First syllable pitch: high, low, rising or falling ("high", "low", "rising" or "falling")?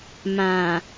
low